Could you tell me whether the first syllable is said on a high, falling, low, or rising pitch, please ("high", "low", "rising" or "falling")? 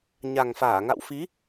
low